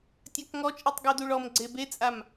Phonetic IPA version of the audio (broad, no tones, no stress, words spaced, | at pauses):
tʲakŋɔt͡ʃʼitˤ ɡuduɭɔmɡ͡ǀe bet͡sʼam